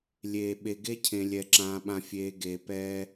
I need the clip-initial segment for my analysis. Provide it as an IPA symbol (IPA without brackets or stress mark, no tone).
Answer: lʲ